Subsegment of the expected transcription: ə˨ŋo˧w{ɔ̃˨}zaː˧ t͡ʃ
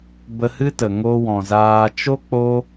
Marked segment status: correct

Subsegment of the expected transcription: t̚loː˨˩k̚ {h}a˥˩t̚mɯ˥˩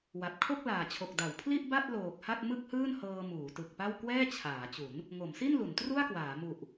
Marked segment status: correct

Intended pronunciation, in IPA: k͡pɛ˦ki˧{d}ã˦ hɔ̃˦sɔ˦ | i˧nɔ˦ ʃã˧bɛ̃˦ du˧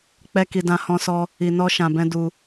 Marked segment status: correct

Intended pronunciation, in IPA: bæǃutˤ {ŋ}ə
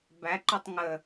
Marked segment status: correct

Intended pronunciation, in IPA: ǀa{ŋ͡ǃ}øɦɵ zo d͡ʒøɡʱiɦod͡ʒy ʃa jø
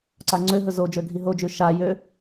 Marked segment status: incorrect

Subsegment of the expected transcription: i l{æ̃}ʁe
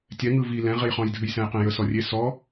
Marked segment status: incorrect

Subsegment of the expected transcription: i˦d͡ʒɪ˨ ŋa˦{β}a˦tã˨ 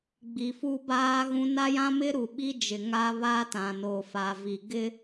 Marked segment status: correct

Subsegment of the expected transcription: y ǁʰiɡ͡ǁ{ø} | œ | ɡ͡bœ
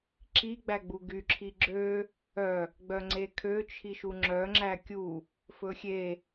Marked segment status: correct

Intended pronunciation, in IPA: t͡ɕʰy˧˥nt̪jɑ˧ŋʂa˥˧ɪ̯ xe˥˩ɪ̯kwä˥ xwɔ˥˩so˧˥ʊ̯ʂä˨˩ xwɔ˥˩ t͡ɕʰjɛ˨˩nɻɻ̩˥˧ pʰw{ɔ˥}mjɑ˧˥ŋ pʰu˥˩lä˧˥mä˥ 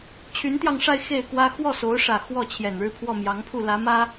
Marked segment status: incorrect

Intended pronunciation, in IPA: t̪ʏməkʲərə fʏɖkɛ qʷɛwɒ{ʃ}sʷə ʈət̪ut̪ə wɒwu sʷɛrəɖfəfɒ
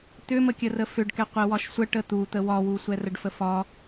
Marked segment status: correct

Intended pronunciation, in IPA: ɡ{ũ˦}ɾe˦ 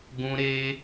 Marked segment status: correct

